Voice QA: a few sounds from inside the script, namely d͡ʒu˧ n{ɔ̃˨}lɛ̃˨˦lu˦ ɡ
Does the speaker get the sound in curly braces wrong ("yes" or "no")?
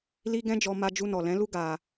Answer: yes